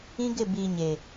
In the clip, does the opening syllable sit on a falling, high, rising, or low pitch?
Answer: high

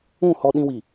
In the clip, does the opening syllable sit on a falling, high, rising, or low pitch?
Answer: falling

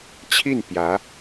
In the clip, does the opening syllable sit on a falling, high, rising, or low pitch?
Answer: falling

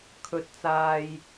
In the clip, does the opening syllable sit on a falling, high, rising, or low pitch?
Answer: low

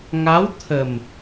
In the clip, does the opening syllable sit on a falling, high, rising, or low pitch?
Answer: rising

